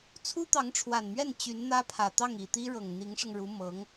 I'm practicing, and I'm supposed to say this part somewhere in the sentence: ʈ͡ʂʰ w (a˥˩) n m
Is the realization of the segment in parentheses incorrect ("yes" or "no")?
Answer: yes